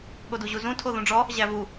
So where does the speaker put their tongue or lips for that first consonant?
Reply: velum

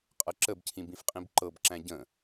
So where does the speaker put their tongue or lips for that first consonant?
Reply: uvula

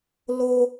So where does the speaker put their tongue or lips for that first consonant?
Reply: tongue tip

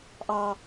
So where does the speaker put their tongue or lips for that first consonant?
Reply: throat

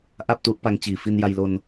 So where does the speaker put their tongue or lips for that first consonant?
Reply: throat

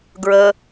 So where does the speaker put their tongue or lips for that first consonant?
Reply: velum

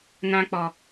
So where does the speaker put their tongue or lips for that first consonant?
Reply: tongue tip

